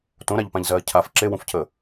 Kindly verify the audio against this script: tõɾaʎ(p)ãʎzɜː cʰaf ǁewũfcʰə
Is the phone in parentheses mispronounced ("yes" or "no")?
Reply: no